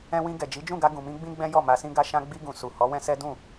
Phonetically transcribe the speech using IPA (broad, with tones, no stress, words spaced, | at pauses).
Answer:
ɛ̃˧wĩ˧ɡɛ˨ d͡ʒi˨˦d͡ʒũ˦˨ɡa˧ ɡũ˨mĩ˧ ɡ͡bĩ˦ɡ͡bɛ̃˦jɔ˦˨ ma˧sĩ˦ɡa˦ʃã˦ ɡ͡bi˧ɡũ˨ su˨ hɔ˨˦wɛ̃˦sɛ˦ dũ˦˨